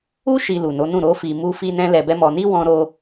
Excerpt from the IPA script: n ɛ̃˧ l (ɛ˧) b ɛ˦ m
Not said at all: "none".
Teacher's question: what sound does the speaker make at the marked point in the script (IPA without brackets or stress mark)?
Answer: ɛ˧